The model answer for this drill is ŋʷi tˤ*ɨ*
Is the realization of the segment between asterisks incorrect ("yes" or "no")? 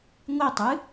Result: no